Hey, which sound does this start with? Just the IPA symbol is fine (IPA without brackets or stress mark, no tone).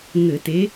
ŋ